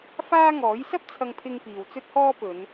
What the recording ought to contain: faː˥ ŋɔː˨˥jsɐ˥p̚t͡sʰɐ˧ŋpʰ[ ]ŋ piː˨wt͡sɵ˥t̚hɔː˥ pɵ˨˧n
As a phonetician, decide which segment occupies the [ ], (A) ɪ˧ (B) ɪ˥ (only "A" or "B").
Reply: A